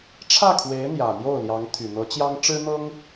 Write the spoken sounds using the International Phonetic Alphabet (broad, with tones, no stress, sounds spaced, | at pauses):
ʈ͡ʂʰ ä˥˩ kʰ w e˧˥ ɪ̯ n̪ j ä˨˩ n̪ j o˥˩ ʊ̯ l j ɑ˧˥ ŋ t̪ʰ y˨˩ n̪ ɤ˧˥ t͡ɕ j ɑ˥ ŋ ʈ͡ʂ ɻ̩˥ n̪ ɤ˥ ŋ